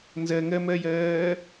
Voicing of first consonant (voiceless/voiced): voiced